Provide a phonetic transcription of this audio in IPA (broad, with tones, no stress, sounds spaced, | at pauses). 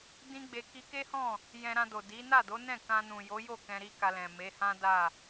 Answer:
d ĩ˦ ɡ͡b e˧ k i˧ k e˦ h ɔ̃˦˨ | j ɛ̃˧ ɾ ã˧ d o˨ d i˨˦ n a˦˨ d o˨˦ n ɛ̃˦˨ k ã˧ n ũ˨ j o˨˦ j o˦˨ k ɛ̃˧ ɾ i˦ k a˧ l ɛ̃˨ m e˨˦ h ã˦ d a˦˨